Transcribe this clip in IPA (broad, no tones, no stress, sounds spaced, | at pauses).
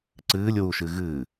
ǀ ɨː lʲ w u ʃ ɨ ɣ ɨː